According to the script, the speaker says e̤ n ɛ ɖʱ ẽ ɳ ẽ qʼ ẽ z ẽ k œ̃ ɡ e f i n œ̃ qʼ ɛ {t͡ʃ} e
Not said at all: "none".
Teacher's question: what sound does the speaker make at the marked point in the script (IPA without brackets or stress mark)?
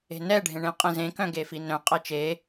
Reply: t͡ʃ